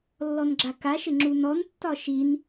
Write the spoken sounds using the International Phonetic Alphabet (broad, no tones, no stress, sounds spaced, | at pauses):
lː ɔ n ɡ͡ǁ a k a ʃ ɘ ŋ͡ǁ u n ɔ n tː ɒ ʃ i n